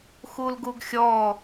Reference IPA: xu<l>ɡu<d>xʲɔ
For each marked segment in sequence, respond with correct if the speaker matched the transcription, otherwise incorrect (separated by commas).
correct, incorrect